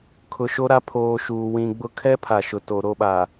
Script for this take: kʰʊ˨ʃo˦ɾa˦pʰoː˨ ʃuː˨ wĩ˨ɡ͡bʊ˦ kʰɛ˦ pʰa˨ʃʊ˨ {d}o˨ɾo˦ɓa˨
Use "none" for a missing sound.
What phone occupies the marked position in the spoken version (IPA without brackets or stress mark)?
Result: t